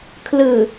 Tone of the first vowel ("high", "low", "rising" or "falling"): low